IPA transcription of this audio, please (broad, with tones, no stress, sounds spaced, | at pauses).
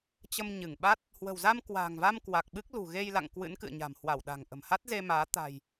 t͡ɕ ə˧ m ɲ ɨ˧˩ ŋ ɓ a˦˥ t̚ | h w ə̤˨˩ w z a˧ m k w a̤ː˨˩ ŋ v a˧ m k w a˨˩ k̚ ɓ ɨ˦˥ k̚ l ṳ˨˩ ɣ e˧ j l a̰˧˨ ŋ k w ɨ̰˧˥ n k ɨ̰˧˨ ə̯ ɲ a̤˨˩ m h w a˧˩ w ɗ a̤˨˩ ŋ ʔ ə̤˨˩ m h a˦˥ t̚ z e˧ m aː˨˦ t̪ a̤˨˩ j